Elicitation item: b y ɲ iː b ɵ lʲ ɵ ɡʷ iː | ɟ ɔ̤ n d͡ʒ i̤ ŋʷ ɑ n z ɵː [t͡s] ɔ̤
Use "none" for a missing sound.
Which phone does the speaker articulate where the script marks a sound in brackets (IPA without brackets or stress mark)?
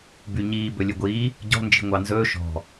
ʃ